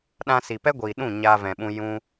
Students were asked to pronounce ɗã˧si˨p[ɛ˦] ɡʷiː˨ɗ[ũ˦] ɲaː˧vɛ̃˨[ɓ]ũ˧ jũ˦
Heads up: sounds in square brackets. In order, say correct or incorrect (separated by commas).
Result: correct, incorrect, correct